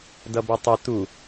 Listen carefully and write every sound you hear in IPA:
d ʌ b ʌ tˤ ə t̪ u

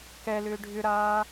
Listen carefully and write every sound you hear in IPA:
k ɛ l ʏː ɖʱ ʏ ɾ aː

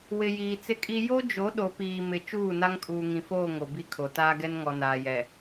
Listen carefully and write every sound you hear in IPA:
w ɪ˨ j iː˨ t͡s ɪ˦ kʼ i˦ j o˦ d͡ʒ o˨˦ ɗ o˨ p iː˨ m ɪ˨ t͡ʃ uː˦˨ n a˦ ŋ kʼ uː˨ ŋ ĩ˨ f oː˦˨ ŋ o˨ b i˦ kʰ o˨ t aː˦ ɡ ɛ˦ n ŋ ɔ˨ n aː˨ j ɛ˨

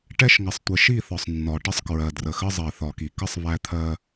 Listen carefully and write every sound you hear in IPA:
ʈ ɛ˦ ʃ ŋ ə˨ sˤ tʷ ɪ˨ ʃ i˦˨ θ ɒ˨ sˤ nː ɒ˨ ʈ ə˦ sˤ k ɹ ɜ˨ d r ə˨ x ə˦ zˤ ɜ˨ θ ɒ˨ k i˨ k ə˦ sˤ β æ˦ t̪ʰ ɜ˦

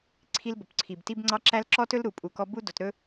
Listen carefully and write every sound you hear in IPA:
ǀʰ i˦ l b ɵ˨ p ǀʰ i˨ b t i˦ b ŋ͡ǀ ɑ˦ ǁ æ˦ l ǁ ɔ˦ t ɵ˦ l ɾ u˨ pʼ u˨ k ɔ˦ b u˦ d o˨ t ɾ ɵ˦

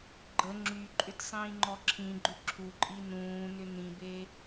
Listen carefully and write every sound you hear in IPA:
ɡ͡ǃ ə ŋ͡ǁ y ǃʼ ʏ t sˤ ĩː ŋ͡ǃ ɔ ǁʰ ĩ ɡ͡ǃ ʏ ǁʰ u ǃʼ i n ũː n ʏ n ĩ b e

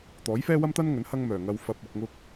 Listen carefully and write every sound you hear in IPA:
t̪ ɔː˨˥ j f ɛː˥ w ɐ˥ m t̪ ɐ˥ n ŋ ɵ˨˥ n h ɐ˧ ŋ m œː˨˩ ŋ ɐ˧ w f ɐ˧ p̚ ʊ˧ k̚ ŋ ʊ˥ k̚

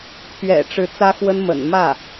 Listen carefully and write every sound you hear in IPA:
pʰ ɥ ɛ̰˨˩ ʈ͡ʂ ɻ̩˧˥ t͡s ä˥ x w ə˥ n m ə̰˨˩ n m ä˥˩

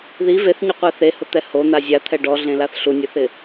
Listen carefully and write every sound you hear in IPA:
ð i v e θ ɲ ʊ qʷ e θ e h ʊ t̪ ɛ h o n̪ a zʲ a t̪ʰ ɛ ɖ ɔ ɮ ẽ l a θ ɬ u nʲ ʊ θ ɪ

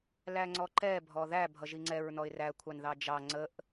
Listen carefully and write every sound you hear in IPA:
l æ ŋ͡ǀ ɔ ǃ ɛ bʱ ɔ ð æ bʱ ʌ ʒ i ŋ͡ǀ ɛ ɹ n ɔ ɪ̯ r æ kʷʰ ɑ n ð ɑ d͡ʒ ɑ ŋ͡ǀ ə ʔ

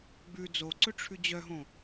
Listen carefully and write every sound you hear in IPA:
ɡ͡b ʉ d͡z o ǀ ɵ ʈ͡ʂʰ ʉ d͡ʑ œ ɦ õ

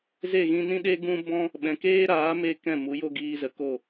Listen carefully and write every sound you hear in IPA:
z e˦˨ ɣ ĩ˧ n ĩ˦ ɗ e˦ ɡ ũ˦ b ɔ̃˦ | ɓ ɛ̃˨ k eː˦ ɾ aː˨˦ m e˦ k ɛ̃˦˨ m u˨˦ j o˦ ɡ iː˧ z ə˨ k o˦˨

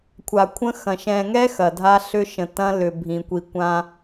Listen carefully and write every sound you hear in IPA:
kʷʰ a˨ kʷʰ ə̃˦ x ɐ̃˨ ʃ ɛ̃˨ ŋ ɛ˦ x ɐ˨ dʱ a˦ ɬ ʏ˦ ʃ ə̃˨ t ɐ̃˦ l ʏ˨ bʱ ĩ˨ kʷ i˨ kʷ ã˦

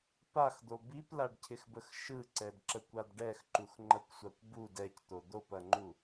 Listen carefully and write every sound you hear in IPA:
p a x d̪ o b i p l a ɖ cʰ ɪ x b ə x ʃ ɯ ǀ ɛ d ǁ ə kʷ a d ɖ ɛ x ǃ u x ŋ͡ǃ ɐ kʷ sʷ a kʷ b u d ɛ c t̪ o d̪ o p ɐ ŋ͡ǃ u

